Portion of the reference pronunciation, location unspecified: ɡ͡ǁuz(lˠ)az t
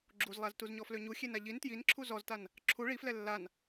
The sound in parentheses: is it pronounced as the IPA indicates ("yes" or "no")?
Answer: yes